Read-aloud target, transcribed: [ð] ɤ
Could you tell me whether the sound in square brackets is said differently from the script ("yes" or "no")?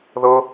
no